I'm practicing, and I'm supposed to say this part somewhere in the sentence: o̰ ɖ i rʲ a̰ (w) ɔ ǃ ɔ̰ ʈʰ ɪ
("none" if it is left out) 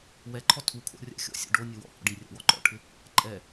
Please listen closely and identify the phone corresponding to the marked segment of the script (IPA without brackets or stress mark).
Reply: w